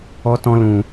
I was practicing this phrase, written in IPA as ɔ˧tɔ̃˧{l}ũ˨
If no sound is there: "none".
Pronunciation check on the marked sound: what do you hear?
l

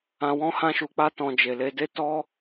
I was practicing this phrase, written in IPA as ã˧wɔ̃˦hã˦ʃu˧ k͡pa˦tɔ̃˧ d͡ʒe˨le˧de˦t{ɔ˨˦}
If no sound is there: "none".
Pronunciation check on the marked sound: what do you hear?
ɔ˦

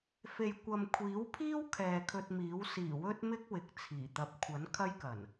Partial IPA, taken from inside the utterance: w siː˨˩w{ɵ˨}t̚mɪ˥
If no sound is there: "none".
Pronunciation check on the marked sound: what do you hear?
ɵ˥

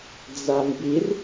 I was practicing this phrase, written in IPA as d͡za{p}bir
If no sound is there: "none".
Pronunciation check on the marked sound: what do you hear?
m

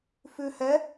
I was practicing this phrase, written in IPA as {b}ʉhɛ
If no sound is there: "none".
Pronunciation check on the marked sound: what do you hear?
f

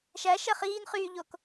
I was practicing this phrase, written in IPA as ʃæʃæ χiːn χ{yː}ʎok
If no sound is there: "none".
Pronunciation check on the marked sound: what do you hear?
yː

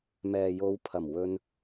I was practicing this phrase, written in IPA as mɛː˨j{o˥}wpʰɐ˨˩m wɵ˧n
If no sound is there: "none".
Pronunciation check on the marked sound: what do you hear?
o˨˧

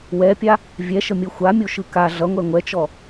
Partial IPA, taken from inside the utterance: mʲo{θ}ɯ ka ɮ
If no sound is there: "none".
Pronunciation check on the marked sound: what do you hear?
ʃ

